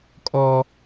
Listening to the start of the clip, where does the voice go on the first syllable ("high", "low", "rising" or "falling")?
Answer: high